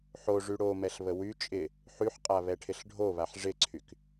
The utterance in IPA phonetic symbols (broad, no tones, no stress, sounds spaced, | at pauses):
ħ o ʐ y ɽ o m ɛ ɬ β ə w y t͡ʃʼ ɪ | ħ y ħ qʼ a β ɛ ʈʰ ɪ ɬ ɖʱ o β a ħ ʐ ɪ ǀʰ y k